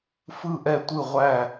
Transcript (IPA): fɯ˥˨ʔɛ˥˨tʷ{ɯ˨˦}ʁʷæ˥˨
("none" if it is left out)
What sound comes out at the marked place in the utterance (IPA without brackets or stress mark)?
ɯ˥˨